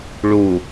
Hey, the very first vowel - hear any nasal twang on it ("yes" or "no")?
no